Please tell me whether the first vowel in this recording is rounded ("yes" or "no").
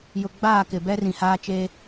yes